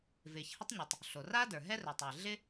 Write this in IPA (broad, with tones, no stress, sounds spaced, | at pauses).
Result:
v ɪː˩ ç h ɪ˥ tˤ ɲ ɵ˩ tˤ | ɬ o˩ r aː˥ d ə˞˩ ɦ ɛ˥ r ɵ˩ tˤ ɪː˩ ɮ ɪ˥